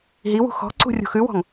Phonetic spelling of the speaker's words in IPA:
ɦ i w ṳ x ɔ̤ ǀ ṳ rʲ ṳ x ʉ w ɔ̤ ŋ

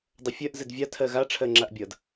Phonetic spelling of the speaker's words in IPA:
dˤ ʌ fʲ ɜ ʔ z ɘ d vʲ a tʰ ɜ ɣ a ʈ͡ʂʰ ɜ ŋ͡ǁ a ʔ bʲ ʌ d

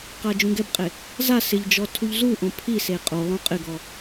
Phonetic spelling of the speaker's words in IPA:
q a d͡ʒ ũ ɡ ɛ b qʼ e | z a s ɪ ʎ d͡ʒ ɔ tʰ u ʎ z u ʔ õ pʰ i s e qʼ o lˠ õ qʼ ɪ ɡ ɔ

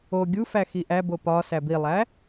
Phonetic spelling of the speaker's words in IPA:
o ɡʲ u f æ x i ʔ æ b o p ɒ s æ b i lˠ æ

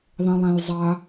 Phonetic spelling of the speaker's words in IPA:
ðˤ ĩ lˠ æ̃ j zˤ a

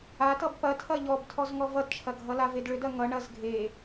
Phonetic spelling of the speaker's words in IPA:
a t ʌ b p ɐ tʰ ɐ ʎ ɔ b tʰ ɔ z ŋ ɔ v ʌ d t͡ʃʰ ɐ ɡʱ ʌ l a v e d ɭ ʏ d ɐ ŋ ʌ ɳ ɐ z ɡʱ e

